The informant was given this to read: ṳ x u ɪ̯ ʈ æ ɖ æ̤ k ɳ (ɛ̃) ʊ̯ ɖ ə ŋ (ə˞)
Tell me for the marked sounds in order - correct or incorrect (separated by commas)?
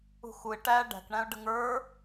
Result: incorrect, correct